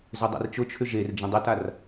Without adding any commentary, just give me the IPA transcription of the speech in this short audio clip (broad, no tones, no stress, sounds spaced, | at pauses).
z ø dˤ ɛ̰ r t͡ʃ ʊ t͡ʃʰ ʏ ʒ e r d͡ʒ ə̃ dˤ ə t a r